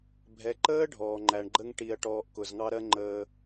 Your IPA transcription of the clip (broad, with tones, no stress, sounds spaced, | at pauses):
bʱ ɛ˨ ǃ əː˦ ɖʱ ɔː˨ ŋ͡ǃ æ˨ ɳ ɡ͡ǃ ə˦ ŋ ʈ i˨ ɐ̯ ʈ ɔː˨ ʔ k ʊ˨ z ŋ ɑ˦ ɾ ɜ˦ ŋ͡ǃ əː˨